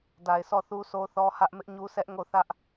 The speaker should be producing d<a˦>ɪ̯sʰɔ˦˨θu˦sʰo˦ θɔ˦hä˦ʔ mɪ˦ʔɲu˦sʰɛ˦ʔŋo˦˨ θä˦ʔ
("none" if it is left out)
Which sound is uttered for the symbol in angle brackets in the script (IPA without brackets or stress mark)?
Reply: a˨